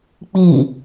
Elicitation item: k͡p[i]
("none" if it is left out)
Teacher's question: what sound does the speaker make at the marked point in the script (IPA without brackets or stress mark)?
i